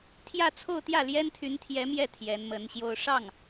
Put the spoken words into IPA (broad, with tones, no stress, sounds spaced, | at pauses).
t̪ʰ j ä˥˧ t͡sʰ o˥˧ ʊ̯ t̪ j ä˥˩ l j ɛ˥ n t̪ʰ y˧˥ n t̪ʰ j ɛ˧˥ m j ɛ˥˩ t̪ʰ j ɛ˧˥ n m ə˧˥ n ɕ j o˥˧ ʊ̯ ʂ ɑ˥˩ ŋ